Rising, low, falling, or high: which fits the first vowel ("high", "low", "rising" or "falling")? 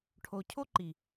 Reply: low